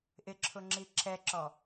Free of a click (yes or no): no